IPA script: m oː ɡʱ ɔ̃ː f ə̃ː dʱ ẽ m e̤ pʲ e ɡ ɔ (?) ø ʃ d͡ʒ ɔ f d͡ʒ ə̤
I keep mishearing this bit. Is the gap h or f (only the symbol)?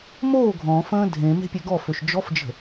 f